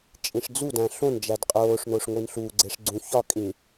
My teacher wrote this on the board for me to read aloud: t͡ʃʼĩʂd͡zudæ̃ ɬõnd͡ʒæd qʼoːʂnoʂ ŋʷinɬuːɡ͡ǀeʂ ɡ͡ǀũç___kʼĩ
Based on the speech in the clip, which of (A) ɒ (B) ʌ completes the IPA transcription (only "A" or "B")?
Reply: A